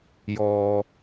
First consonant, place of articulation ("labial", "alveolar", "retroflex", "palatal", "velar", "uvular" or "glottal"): palatal